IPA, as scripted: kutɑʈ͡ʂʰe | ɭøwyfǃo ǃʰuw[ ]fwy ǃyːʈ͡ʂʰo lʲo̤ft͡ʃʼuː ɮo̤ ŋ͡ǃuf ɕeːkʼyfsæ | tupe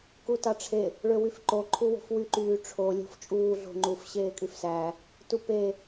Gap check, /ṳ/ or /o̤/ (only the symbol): o̤